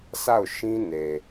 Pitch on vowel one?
falling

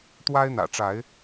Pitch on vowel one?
high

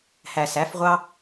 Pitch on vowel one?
low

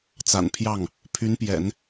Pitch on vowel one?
low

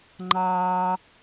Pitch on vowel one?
low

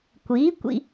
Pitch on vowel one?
rising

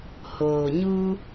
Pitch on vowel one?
low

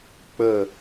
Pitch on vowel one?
falling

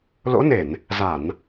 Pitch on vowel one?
rising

